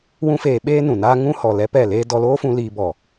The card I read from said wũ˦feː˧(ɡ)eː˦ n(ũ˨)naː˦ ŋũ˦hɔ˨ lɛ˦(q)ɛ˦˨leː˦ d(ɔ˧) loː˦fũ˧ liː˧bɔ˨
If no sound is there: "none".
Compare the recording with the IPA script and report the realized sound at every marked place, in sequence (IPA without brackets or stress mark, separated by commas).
ɓ, ũ˨, p, ɔ˧